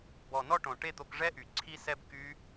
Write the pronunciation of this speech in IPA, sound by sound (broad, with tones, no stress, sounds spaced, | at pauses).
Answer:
b ɔ˨˩ n ɔ˥˨ ʈ õ˨˩ ʈ e˥˨ t̪ o˧ k ʐ ɛ˦˥ ʔ y˩˧ ǀʰ i˧ s ɛ˧ b k y˦˥